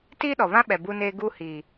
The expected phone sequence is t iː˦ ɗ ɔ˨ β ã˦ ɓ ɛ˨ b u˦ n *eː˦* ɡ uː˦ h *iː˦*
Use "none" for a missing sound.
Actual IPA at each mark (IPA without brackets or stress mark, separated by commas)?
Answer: eː˦, iː˨